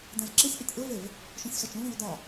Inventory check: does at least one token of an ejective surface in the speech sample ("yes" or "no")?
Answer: no